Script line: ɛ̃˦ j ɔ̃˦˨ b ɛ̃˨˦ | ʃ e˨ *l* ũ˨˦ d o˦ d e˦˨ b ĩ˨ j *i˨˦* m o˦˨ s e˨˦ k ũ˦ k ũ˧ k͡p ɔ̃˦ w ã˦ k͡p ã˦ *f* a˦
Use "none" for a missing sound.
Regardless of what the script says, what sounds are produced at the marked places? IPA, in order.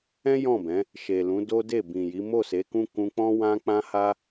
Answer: l, i˨˦, h

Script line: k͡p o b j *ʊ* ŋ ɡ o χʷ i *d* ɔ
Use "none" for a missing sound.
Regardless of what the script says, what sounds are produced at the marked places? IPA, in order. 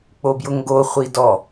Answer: ʊ, d

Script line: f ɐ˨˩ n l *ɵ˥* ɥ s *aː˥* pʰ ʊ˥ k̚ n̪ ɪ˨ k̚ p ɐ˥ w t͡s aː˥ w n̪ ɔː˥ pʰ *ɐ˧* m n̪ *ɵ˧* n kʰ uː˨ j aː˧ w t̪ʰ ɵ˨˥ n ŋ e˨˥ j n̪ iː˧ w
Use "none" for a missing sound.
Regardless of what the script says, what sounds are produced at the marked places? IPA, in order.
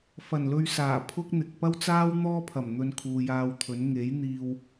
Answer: ɵ˧, aː˨˩, ɐ˨˩, ɵ˧

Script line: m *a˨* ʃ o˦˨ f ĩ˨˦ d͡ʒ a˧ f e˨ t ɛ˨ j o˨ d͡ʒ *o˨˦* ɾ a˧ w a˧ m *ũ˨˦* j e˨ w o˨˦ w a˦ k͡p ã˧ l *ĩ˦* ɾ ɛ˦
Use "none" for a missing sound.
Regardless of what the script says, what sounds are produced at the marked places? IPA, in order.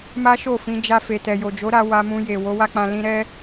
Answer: a˦, o˨˦, ũ˧, ĩ˧

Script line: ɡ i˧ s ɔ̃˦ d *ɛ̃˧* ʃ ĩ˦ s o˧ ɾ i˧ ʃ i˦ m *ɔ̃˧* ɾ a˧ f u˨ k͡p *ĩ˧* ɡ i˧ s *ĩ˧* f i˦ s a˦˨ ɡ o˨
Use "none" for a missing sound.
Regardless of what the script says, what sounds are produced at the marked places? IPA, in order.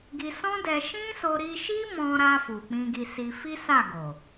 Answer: ɛ˧, ɔ̃˧, ĩ˧, i˧

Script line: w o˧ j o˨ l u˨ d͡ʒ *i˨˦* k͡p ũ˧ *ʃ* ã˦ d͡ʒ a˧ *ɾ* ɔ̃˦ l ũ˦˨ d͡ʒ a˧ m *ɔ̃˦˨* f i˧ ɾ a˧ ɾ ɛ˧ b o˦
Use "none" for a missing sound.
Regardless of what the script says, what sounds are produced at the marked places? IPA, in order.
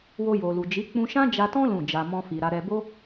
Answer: i˨˦, ʃ, t, ɔ̃˦

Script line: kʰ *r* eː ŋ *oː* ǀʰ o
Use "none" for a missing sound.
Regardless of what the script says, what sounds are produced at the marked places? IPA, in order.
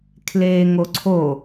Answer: l, o

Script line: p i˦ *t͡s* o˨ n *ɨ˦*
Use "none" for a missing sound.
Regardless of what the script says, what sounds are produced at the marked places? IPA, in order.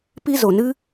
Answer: z, ɨ˦

